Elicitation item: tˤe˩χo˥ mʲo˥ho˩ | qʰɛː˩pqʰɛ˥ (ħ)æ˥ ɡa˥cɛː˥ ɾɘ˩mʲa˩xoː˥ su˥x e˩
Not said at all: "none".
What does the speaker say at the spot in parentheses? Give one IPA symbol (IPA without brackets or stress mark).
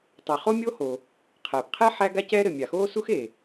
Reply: ħ